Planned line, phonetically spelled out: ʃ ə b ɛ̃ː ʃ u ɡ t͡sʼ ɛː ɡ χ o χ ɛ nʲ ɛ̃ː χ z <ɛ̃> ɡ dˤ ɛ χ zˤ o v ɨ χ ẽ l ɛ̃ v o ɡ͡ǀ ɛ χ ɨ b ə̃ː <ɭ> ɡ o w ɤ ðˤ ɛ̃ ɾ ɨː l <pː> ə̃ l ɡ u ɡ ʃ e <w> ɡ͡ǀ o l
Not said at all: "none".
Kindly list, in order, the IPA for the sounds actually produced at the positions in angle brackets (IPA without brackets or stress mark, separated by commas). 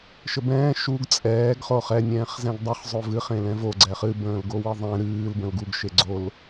ɛ̃, l, b, none